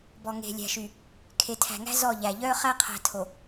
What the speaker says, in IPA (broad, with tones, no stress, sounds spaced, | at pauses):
b ɔ˨ ŋ e̤˨ lʲ æ̤˨ ʃ y˨ | kʰ e˨ tʰ æ̤˨ ŋ æ̤˦ z ɔ˦˨ ʎ æ˨ ʎ œː˦ χ æ˦ qʰ æ̤˨ tʰ o˨